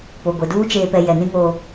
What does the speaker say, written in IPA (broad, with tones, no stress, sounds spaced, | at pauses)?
p o˨ ɡʷ e˨ d uː˦ t͡ʃ eː˨ p ɛ˨ j ɛ˨ n ĩ˦ ŋ oː˦